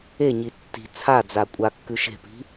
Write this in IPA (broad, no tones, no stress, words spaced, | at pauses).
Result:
eɲi tːi̤ t͡sʰad͡za kʷʼakːʉ ʃe̤pi̤